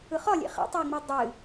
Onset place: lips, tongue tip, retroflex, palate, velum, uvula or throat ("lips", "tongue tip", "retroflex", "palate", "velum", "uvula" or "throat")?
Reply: uvula